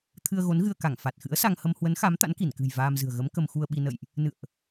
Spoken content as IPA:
t̪ʰ ɨ˧ ə̯ ɣ o˨˦ n ɣ ɨ˧ ə̯ k a˧˩ ŋ f a˨˩ t̚ x ɨ̰˧˥ ə̯ s a˧ ŋ h ə˧ m h w ə˨˦ n x a˨˦ m t̪ a̰˧˥ n k i˧˩ n k ɨ̤˨˩ j v aː˧ m z ɨ̤˨˩ ə̯ ɣ ə˨˦ m k ə˧ m x u˧ ə̯ ɓ i˧ n ə̰˧˨ j ʔ | n ɨ̰˧˨ ə̯ ʔ

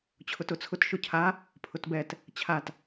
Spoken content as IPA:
t͡ɕʰ ʊ t ʊ t͡sʰ ʊ t ʃ ʊ cʰ a | pʰ ʊ t b ɛ t | t͡ɕʰ a t

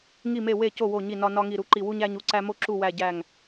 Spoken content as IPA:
ŋ i˥˩ m e˥˩ w e˥˩ c o˥˩ w o˥˩ ɲ i˥˩ n ɒ˥ n ɒ˥ ŋ i˥˩ ɾ u˥ ǃ i˥˩ w u˥ ɲ æ˥ ɲ u˥ ǀ æ˥ m o˥ ǁ u˥˩ w æ˥˩ ɟ æ˥˩ ŋ

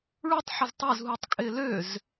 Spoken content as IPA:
ɭ u tˤ ħ ə z tˤ ø z ɦ u tˤ kʼ ɪː l ø z

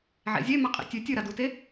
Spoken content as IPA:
ʕ ḛ zʲ e m a qʼ ḭ tʲ ʉ tʲ ɨ ɾ a d u t e

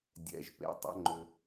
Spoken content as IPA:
dʲ ɛ̰˩ ʒ p ḛ˩ tˤ ə̰˩˧ ŋ͡ǃ ʏ˩

